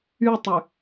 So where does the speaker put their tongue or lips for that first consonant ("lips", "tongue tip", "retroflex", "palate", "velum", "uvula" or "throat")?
tongue tip